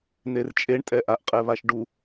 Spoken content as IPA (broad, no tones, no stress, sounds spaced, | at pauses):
n̪ e r t͡ʃʼ e ɳ tʼ ɛ ʔ a ʔ qʼ ɛ β a ʃ ɖ u